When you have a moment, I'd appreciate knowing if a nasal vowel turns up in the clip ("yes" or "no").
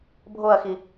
no